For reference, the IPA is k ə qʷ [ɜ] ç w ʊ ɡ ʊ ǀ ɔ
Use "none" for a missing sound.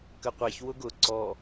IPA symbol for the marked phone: ɛ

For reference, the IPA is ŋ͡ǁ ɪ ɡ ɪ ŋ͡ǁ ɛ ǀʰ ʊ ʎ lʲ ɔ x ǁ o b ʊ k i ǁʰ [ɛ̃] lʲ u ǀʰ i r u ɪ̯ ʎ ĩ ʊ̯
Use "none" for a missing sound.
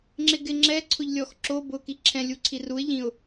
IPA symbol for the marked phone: ɛ̃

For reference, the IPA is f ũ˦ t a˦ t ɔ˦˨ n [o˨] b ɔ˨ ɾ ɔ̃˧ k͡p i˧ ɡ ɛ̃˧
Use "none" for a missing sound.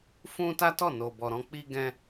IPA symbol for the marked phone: o˨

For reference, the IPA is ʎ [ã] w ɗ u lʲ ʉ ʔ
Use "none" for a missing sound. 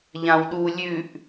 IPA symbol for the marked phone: ã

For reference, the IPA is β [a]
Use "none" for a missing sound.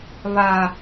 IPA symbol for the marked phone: a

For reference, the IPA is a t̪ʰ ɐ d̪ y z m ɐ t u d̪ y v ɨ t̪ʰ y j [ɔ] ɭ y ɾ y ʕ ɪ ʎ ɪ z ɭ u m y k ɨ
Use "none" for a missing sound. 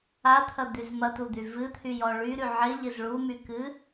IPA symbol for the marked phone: ɔ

